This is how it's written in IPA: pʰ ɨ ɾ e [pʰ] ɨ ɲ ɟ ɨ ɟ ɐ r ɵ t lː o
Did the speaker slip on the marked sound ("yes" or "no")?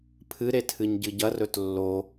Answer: yes